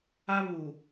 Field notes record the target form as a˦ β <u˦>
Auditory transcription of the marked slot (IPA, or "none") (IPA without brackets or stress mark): u˨